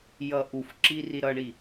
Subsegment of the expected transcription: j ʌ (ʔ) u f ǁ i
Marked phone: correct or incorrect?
correct